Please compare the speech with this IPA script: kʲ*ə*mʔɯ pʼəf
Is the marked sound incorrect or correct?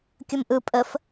correct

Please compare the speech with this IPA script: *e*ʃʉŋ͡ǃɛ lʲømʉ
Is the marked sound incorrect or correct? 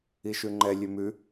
incorrect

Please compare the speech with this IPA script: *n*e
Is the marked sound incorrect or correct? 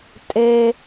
incorrect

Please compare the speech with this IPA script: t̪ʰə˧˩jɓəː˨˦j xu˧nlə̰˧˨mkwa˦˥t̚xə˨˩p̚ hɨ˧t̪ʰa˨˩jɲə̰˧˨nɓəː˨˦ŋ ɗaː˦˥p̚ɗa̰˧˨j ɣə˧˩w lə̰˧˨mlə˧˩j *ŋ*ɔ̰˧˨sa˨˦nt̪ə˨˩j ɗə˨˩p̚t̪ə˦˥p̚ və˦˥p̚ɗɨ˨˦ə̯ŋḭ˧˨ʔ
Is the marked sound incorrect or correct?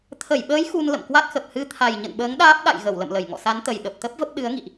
correct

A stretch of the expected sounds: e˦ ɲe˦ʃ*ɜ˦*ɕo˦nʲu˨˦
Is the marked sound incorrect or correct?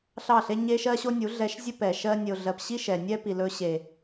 correct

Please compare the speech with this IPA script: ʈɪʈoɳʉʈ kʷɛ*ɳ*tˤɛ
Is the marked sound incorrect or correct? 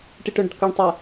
correct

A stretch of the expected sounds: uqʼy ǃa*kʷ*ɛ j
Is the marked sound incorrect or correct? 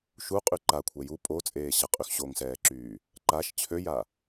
incorrect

